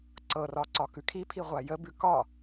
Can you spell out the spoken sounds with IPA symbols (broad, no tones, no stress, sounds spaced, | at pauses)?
ǀ ɤ r ɒ ǀ ɒ k ʉ kʰ i pʰ i ʁʷ a j ə b ʉ k ɒ